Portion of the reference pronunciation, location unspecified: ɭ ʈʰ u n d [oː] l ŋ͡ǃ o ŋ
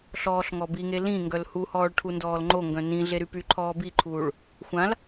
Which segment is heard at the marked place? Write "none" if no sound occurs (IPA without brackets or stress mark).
ɔː